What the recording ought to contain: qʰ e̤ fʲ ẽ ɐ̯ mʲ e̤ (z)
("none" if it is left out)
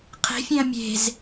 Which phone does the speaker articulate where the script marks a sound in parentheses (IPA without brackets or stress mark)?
z